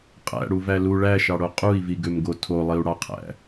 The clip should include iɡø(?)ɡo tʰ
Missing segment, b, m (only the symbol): m